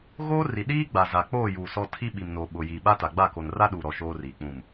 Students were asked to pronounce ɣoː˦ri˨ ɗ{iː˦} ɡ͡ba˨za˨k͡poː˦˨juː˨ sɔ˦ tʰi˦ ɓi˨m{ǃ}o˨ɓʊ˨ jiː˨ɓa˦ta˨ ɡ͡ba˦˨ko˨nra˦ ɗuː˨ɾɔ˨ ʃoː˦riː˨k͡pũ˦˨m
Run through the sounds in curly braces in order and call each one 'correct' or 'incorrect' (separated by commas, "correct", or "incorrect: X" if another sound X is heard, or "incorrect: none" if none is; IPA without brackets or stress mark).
correct, incorrect: n